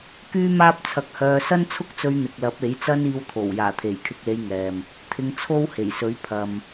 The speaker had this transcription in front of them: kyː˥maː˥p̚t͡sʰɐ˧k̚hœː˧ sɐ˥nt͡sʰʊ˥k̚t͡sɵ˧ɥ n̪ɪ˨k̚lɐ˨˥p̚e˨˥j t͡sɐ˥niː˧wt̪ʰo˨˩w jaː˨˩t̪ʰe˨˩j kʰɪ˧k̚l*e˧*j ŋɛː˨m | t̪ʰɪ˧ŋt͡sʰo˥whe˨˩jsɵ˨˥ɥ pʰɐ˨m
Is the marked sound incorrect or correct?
correct